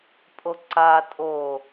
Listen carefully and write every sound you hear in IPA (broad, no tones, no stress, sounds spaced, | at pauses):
pʼ o ǀ a tʼ o